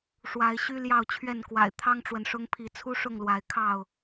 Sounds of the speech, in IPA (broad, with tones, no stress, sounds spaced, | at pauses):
ʂ w a˨˦ ɪ̯ ɕ y˦ l j ɑ˥˨ ʊ̯ t͡ɕʰ ɥ ɛ˥˨ n k w a̰˨˩ ɪ̯ t̪ʰ ɑ˦ ŋ ʈ͡ʂ w ə˨ n ʂ ʊ˦ ŋ pʰ i˨˦ t͡sʰ u˦ ʂ ʊ˥˨ ŋ l w a˨˦ ɪ̯ kʰ ɑ˥˨ ʊ̯